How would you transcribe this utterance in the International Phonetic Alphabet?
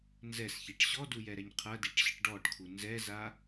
n z ɛ s ç i ʈ ɕ ɔ d u j ɛ ɾ ɛ ɲ qʰ ɐ d i ʈ ɕ ɨ ʈ ɖ ɔ ʈ kʰ u n z ɛ z a

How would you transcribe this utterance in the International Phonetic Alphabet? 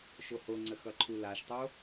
ʃ o h o ŋ͡ǀ ə x ʌ ǃʰ u l a ʃ tˤ o

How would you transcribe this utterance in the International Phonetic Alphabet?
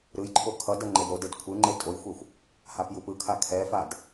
ɾ ɯ j ǃʰ o kʰ ʌ d ʌ ŋ͡ǃ e d ɾ o d e d kʷʰ ɯ ŋ͡ǃ e tʼ o j xʷ ɛ xʷ | h a p j u p ɯ kʰ a kʰ ɛ f a d

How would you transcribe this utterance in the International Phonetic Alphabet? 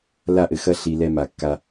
l a˦˨ ʔ ɘ˨ x ɐ˦ ɬ i˨ l ɛ˦ m a˨ kː a˦

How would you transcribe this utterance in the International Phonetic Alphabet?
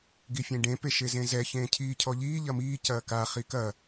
ɡ i fʲ ẽ ɖ ẽ p e ʃ e z ẽ z ɛ ç ẽː cʰ iː cʰ ɔ ʎ iː ʎ ɐ m iː c ɐː k a χ i k ɐ

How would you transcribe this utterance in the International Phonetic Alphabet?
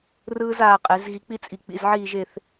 r ɯː˧ z aː˧˩ qʼ e˩˧ z ɣ i˧ k͡p i˥ t͡sʼ i˧˩ k͡p ḭ˩˧ z ʕ iː˥˧ ʒ e˥˧ θ

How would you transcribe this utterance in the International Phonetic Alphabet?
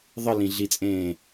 ðˤ ɨ l ĩ ɮ i t͡sʼ ẽː

